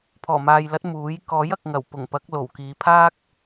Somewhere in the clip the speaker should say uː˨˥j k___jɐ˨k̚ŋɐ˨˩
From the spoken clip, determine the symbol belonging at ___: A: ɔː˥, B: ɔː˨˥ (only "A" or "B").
B